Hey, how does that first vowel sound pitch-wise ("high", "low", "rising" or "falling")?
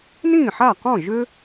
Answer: falling